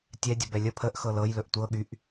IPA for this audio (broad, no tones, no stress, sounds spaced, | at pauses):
tʲ ɛ dʲ ə b ɛ lʲ ə pʰ ə ʔ x ɤ l ɤ j l ɵ ʔ tʷ ɤ ɠ y ʔ